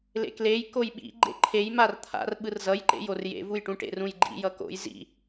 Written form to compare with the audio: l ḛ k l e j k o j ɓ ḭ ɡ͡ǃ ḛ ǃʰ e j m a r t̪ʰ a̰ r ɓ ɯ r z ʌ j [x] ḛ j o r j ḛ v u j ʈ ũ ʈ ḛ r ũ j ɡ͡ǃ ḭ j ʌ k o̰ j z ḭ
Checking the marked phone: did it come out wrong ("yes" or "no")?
yes